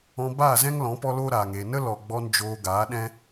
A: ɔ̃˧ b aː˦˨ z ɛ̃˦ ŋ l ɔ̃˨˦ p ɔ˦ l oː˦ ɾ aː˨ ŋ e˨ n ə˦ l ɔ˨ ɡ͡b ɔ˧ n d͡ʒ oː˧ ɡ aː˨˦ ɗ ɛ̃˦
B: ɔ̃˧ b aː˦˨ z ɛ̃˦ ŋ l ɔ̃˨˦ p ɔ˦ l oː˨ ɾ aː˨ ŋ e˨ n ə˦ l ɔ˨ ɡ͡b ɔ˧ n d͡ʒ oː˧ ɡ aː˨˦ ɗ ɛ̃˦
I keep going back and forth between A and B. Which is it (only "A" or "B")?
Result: A